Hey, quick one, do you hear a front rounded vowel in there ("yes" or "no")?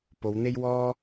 no